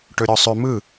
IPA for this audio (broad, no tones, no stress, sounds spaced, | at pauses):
ʈ ɵ ɾʲ ɔ sˤ ʏ m ɯ